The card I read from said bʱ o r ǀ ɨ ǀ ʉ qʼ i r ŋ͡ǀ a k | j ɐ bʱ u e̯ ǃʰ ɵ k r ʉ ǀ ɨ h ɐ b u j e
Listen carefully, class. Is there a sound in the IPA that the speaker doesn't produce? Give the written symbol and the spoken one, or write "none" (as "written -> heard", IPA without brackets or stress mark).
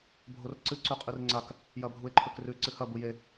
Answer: none